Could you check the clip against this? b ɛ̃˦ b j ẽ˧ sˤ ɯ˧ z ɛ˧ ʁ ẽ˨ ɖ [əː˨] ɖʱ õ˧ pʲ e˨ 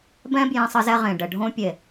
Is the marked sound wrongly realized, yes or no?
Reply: yes